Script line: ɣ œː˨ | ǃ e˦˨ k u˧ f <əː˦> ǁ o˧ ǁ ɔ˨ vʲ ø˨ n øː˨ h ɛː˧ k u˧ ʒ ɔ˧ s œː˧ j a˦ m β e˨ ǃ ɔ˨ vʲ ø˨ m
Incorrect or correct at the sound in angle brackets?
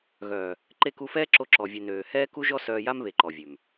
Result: incorrect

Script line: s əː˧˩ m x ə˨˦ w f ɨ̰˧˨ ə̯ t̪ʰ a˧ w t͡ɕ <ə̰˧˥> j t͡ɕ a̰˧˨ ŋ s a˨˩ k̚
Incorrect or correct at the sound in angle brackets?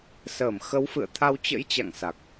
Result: correct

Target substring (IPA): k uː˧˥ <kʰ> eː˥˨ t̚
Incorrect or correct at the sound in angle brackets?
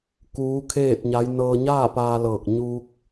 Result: correct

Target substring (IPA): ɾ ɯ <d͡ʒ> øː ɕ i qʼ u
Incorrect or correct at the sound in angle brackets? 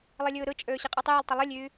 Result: incorrect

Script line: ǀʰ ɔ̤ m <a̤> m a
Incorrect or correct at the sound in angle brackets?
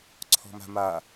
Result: correct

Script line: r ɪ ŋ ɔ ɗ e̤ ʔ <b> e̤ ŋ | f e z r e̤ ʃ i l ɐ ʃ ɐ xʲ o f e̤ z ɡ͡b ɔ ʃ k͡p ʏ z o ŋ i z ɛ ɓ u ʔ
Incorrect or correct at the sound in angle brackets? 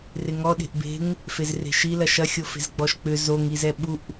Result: correct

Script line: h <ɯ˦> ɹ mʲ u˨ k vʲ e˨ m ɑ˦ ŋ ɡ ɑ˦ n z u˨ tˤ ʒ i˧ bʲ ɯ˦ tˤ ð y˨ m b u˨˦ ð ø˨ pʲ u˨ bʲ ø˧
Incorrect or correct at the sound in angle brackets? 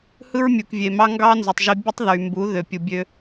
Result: correct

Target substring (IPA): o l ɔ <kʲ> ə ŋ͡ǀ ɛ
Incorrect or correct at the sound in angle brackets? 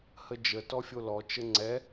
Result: incorrect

